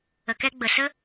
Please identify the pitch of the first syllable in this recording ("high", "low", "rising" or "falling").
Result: low